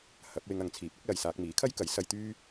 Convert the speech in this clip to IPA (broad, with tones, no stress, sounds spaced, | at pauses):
h ɐ˨˥ p̚ w ɪ˧ ŋ ɐ˨ ŋ t͡sʰ iː˨˥ p̚ ʊ˨˥ k̚ l ɐ˨ j s aː˧ k̚ m iː˨˥ kʰ ɐ˥ j k ɐ˨˥ j s ɐ˧ j t̪ yː˥